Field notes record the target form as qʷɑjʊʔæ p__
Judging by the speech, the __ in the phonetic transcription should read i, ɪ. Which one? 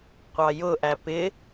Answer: ɪ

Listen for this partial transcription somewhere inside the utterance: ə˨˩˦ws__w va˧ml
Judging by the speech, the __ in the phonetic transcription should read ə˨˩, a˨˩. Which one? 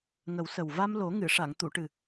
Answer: ə˨˩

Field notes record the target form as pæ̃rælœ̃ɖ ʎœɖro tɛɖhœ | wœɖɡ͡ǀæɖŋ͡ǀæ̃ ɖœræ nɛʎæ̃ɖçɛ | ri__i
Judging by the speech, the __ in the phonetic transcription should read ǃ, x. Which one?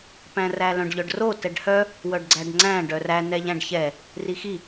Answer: x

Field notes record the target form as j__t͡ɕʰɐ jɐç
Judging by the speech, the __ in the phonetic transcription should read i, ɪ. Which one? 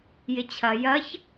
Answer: ɪ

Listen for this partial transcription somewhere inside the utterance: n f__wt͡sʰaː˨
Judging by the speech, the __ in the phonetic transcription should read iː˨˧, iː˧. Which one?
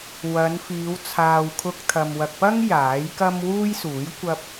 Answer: iː˨˧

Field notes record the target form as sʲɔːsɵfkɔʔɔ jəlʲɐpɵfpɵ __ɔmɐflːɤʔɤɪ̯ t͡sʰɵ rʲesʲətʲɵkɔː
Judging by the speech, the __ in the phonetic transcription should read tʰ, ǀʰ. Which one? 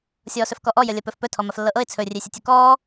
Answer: tʰ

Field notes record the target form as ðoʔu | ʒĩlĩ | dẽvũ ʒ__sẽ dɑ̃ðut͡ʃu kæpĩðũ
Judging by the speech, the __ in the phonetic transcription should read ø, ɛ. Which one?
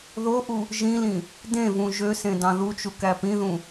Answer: ø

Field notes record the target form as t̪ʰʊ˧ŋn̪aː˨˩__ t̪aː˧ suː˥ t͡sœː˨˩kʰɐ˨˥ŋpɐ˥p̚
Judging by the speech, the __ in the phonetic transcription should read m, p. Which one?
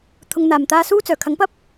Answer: m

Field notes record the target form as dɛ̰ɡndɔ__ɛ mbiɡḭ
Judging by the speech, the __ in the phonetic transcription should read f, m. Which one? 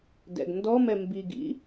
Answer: m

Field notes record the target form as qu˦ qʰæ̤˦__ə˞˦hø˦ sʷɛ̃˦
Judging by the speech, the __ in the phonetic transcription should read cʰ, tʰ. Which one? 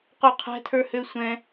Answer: tʰ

